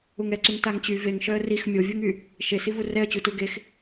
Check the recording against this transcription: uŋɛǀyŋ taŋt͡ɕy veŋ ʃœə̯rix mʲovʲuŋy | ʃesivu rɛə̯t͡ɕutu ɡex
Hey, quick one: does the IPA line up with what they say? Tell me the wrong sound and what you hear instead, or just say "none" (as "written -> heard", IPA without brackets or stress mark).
none